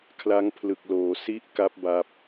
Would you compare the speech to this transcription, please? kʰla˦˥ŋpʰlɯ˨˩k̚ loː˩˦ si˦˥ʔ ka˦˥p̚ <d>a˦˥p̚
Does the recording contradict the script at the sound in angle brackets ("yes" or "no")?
yes